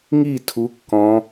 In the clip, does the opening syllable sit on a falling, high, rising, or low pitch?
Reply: falling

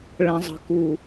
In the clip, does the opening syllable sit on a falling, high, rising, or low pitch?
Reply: low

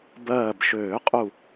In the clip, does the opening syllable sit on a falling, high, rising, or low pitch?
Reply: low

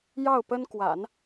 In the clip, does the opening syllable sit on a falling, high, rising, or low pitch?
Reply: falling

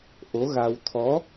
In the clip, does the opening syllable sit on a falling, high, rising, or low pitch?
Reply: rising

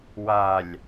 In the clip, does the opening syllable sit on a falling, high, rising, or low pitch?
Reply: low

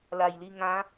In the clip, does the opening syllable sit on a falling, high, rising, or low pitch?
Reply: low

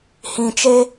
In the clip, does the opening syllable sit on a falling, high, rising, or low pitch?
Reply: low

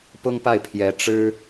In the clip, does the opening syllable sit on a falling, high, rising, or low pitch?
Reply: high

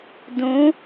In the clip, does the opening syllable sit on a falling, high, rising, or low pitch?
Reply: rising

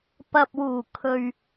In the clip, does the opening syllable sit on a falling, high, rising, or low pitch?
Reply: low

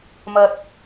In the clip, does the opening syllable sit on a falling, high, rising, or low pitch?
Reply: low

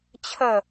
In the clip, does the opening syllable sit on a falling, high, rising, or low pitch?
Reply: falling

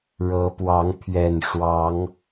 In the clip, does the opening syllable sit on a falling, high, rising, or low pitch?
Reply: rising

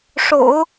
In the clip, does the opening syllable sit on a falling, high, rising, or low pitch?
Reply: low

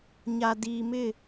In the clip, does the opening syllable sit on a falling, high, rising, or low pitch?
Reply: low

